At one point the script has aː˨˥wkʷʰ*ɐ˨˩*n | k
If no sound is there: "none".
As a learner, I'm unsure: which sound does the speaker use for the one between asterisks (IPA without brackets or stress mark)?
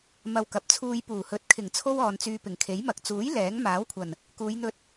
ɐ˨˩